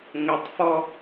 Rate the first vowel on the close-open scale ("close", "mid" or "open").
mid